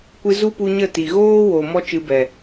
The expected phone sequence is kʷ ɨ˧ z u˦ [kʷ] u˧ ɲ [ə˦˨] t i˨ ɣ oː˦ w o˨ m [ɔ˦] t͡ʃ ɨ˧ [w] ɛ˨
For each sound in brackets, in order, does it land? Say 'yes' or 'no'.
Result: no, yes, yes, no

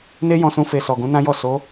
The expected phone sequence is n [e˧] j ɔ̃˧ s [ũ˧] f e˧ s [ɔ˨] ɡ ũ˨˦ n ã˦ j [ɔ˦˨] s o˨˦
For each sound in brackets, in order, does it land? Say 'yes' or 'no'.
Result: no, yes, yes, yes

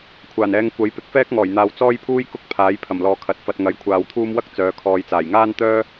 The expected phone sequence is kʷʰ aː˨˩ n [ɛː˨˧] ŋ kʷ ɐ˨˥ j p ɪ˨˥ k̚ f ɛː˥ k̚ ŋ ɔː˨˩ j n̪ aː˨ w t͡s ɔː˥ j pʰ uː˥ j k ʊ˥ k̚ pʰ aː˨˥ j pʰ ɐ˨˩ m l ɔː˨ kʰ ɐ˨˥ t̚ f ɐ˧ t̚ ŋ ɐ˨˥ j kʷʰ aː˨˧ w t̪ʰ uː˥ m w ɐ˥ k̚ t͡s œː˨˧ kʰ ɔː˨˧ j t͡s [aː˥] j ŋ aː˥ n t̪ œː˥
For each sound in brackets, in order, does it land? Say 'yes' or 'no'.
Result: yes, no

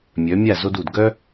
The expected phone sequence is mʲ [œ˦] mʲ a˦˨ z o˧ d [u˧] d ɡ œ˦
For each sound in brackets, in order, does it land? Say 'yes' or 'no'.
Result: no, no

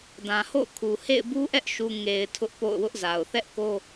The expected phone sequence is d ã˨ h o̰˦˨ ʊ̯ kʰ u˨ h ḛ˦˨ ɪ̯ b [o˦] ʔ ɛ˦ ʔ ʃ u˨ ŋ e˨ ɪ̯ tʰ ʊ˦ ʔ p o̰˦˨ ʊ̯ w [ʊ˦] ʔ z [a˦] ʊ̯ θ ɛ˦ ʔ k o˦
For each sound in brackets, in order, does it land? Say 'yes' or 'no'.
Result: no, yes, no

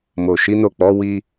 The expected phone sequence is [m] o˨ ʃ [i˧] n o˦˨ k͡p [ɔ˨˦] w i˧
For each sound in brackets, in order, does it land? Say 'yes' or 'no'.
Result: yes, no, yes

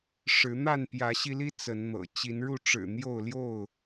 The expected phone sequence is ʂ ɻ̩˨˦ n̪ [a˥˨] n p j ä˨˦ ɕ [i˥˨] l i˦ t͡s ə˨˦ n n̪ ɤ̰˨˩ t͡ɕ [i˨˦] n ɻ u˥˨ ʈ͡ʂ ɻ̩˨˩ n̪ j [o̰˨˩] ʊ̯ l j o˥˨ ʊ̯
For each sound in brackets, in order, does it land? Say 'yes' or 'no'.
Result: yes, no, yes, no

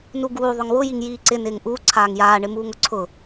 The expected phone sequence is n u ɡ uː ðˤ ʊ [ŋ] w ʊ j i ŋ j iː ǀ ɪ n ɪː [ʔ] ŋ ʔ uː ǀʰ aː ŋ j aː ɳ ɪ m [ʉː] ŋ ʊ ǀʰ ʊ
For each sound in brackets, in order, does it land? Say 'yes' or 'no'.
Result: yes, no, no

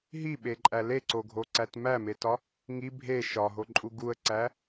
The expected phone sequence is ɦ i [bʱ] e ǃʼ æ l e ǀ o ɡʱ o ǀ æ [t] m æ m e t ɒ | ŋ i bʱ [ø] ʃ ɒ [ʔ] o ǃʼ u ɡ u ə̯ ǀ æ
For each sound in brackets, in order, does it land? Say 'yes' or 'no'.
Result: no, yes, no, no

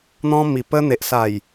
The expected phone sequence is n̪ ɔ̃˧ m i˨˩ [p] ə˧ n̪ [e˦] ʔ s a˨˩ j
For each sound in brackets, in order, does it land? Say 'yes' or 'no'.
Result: yes, no

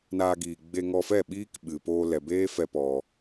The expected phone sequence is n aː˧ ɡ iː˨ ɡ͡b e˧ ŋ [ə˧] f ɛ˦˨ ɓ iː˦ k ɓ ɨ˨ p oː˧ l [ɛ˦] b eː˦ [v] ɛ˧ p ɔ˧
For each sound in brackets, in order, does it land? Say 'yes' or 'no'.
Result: no, no, no

